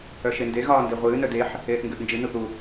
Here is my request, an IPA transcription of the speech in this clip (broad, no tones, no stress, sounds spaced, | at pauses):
œ ʃ e n d e ɣ ɒː n d e ʁʷ ɨː n œ d e ħ | eː θ ŋ ɡ ø ʔ n d͡ʒ ɨ n u θ u